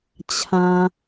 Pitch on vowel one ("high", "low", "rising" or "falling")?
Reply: high